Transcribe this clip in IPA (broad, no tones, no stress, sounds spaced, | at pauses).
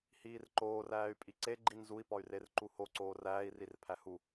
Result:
h iː r ǃ oː r æː y̯ pʼ i ǀ e ɡ͡ǃ i n z u i̯ p ɒ y̯ r e r ǃ u h o ǀ oː r æː i̯ r i r pʰ æ h u